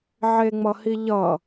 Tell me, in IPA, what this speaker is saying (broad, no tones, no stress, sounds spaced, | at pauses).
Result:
ʕ e ŋ͡m ʌ h i ʎ ʌ